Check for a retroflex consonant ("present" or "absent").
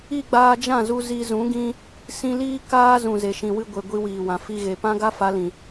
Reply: absent